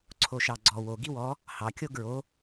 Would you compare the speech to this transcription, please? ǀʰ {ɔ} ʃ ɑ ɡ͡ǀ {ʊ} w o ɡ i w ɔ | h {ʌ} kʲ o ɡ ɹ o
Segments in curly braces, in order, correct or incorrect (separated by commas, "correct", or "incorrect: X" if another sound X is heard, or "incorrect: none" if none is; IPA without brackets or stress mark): incorrect: o, incorrect: ɔ, incorrect: ɑ